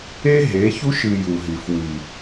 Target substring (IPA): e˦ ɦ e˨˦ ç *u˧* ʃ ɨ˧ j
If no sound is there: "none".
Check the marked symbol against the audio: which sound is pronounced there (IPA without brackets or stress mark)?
u˦